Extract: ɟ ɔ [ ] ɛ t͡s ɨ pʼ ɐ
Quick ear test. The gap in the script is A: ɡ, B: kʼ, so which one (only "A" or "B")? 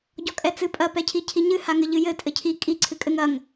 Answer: B